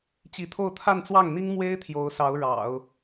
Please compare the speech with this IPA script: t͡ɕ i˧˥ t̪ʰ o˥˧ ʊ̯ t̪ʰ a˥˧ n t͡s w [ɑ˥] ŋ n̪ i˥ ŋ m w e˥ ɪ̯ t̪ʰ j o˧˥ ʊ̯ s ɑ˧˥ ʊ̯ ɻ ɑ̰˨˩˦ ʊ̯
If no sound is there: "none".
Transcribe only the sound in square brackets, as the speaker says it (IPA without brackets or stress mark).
ɑ˥˩